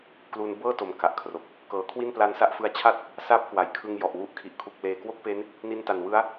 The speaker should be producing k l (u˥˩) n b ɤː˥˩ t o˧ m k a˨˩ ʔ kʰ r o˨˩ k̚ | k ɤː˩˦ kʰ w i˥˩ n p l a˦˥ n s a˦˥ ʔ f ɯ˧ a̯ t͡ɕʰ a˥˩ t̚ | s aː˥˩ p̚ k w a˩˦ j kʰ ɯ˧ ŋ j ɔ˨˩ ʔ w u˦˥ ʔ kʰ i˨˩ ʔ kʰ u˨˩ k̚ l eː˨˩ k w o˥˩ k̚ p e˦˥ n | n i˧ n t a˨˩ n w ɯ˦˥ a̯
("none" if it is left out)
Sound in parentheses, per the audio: u˧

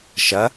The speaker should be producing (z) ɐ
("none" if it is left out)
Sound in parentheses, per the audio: ʃ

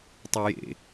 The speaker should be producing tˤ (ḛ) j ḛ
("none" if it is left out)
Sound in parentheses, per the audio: e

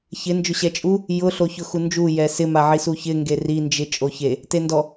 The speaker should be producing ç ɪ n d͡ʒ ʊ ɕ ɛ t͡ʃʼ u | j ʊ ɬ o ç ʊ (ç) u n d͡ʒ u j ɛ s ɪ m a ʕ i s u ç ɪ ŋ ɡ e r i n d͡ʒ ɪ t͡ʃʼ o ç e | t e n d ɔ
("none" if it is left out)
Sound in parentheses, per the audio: x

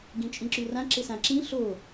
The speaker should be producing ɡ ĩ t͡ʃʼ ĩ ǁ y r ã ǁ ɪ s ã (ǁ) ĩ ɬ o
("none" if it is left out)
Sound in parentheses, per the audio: ǁ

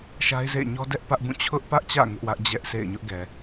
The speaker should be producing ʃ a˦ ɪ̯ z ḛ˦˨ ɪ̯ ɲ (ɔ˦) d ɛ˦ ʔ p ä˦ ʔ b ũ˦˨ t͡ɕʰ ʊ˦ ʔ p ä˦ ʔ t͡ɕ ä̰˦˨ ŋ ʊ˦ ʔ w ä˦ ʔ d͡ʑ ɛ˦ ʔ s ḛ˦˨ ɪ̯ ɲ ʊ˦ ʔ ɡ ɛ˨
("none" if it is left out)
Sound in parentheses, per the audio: ɔ˦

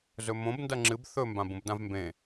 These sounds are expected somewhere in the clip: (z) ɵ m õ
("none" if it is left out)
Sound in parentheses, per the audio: z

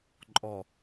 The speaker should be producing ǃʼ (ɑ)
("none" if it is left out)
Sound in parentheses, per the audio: ɔ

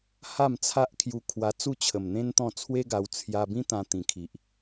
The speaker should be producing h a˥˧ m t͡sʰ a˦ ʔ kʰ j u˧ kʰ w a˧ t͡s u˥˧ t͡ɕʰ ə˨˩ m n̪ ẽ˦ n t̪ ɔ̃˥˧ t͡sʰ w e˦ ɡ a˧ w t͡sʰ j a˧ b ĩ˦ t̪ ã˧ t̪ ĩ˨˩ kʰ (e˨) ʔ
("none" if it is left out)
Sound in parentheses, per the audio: i˨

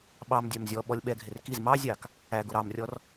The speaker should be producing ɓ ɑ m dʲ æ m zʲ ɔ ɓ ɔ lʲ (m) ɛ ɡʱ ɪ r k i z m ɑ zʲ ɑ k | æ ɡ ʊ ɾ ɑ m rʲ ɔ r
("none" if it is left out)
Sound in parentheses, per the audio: ɓ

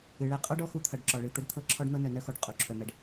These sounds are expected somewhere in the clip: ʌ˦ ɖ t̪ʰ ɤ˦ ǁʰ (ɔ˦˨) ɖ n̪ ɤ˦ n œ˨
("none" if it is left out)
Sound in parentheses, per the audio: ɔ˦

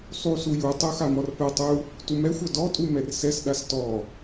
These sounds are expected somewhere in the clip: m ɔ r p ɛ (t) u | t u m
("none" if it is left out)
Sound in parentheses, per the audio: tˤ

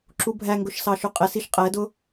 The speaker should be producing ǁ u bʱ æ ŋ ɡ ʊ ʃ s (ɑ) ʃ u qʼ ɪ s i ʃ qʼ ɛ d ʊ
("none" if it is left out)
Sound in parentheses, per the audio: ɑ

